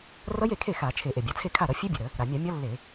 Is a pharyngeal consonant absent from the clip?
yes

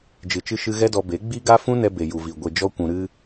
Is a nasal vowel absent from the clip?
no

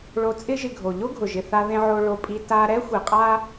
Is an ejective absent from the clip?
no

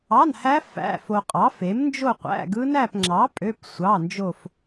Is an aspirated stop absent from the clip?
yes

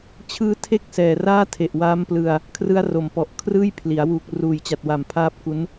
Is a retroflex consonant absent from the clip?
yes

